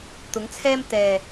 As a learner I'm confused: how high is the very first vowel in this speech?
high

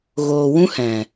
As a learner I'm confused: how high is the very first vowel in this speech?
mid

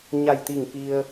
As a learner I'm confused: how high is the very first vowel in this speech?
low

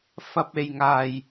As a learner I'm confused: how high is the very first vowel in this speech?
low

